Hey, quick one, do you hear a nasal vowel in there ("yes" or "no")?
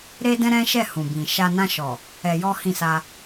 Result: yes